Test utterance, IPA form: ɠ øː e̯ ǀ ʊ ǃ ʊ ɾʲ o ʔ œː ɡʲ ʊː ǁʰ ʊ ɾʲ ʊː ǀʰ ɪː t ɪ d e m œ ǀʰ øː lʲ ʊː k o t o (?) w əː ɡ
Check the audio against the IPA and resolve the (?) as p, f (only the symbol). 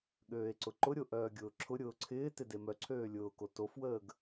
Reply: f